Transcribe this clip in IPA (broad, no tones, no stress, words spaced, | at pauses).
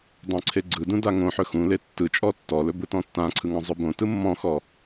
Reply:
dˤõǀʰeɡ͡ǀɯdũ daŋõħɵ xũle tːɯt͡ʃʼɔ tːɔlɵ bɯtɔ̃tːãǀʰɯ ŋɔ̃zˤɵbõtɯ mːɔ̃xɔ